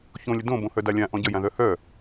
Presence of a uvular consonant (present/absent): absent